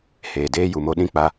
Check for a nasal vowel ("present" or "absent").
present